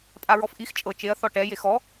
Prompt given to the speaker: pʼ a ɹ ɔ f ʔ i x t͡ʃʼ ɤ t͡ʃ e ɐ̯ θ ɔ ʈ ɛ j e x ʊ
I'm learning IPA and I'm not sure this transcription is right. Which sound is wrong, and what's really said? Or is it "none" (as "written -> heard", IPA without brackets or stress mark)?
ʊ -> ɔ